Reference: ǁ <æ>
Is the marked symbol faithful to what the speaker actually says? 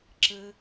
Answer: no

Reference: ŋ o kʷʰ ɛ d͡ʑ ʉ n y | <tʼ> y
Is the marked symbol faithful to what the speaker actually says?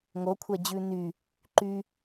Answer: no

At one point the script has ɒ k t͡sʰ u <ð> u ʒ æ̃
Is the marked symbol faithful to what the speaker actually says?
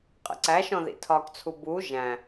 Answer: no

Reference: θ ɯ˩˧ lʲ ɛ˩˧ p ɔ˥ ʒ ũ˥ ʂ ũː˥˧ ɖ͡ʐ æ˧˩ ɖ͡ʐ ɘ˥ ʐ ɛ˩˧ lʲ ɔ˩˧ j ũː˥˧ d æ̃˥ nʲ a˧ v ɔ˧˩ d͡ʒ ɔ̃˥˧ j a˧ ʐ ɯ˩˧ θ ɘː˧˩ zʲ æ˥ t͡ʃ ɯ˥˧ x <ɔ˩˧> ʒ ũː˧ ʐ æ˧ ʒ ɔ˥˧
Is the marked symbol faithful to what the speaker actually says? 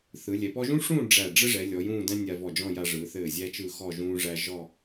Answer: no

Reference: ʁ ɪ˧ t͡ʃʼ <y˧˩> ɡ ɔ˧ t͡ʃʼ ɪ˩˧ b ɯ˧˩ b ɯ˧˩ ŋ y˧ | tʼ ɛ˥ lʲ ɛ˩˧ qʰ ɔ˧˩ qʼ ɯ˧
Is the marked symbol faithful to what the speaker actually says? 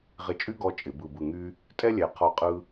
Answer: no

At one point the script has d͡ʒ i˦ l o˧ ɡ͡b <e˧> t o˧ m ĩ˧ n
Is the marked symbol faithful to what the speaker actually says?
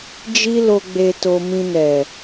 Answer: yes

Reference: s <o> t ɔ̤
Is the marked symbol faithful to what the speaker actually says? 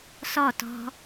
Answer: no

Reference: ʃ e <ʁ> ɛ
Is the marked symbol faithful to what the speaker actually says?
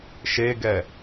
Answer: no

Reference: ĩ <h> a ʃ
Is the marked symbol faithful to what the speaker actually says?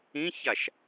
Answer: no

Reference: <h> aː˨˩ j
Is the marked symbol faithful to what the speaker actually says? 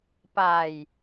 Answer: no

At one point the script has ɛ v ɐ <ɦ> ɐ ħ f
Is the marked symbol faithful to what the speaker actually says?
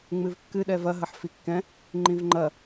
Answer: yes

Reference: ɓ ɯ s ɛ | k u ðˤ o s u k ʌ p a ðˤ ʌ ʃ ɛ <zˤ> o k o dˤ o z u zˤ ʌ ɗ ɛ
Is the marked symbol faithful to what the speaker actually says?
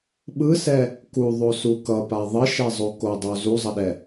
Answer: yes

